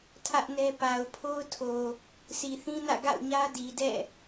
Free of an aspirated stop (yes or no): no